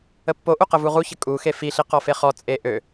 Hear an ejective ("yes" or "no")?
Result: yes